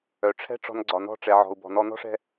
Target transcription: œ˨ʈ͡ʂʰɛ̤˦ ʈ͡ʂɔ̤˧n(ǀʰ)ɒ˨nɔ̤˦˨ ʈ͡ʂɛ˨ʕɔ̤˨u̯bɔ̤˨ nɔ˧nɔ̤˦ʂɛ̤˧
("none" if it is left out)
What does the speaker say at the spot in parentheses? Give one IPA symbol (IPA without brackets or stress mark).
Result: ɡ͡ǀ